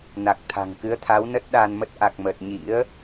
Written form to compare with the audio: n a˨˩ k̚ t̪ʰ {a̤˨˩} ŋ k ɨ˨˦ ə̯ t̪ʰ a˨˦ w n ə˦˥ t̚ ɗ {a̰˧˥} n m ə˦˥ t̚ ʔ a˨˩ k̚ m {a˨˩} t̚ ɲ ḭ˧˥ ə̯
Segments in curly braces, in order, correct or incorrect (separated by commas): correct, incorrect, incorrect